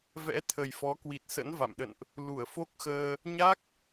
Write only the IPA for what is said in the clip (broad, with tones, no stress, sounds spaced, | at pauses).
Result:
v ɛ̰˧˥ t̪ʰ ə˨˩ j f ɔ˨˦ k w i˨˩ t̚ s ə̰˧˥ n v a̰˧˨ m ɗ ə̰˧˨ n ʔ | l u˧˩ ə̯ f o˦˥ k̚ x əː˧ | ɲ a˦˥ k̚